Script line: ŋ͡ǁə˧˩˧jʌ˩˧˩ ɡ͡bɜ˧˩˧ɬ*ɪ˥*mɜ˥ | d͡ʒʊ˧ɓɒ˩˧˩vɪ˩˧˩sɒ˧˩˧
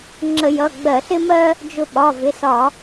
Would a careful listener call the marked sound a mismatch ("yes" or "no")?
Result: no